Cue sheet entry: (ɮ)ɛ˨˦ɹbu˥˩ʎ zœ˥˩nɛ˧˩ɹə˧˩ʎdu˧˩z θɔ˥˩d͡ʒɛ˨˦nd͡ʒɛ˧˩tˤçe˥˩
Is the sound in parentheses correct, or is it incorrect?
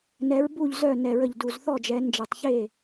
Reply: incorrect